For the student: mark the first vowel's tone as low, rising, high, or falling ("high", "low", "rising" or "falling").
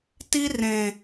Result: high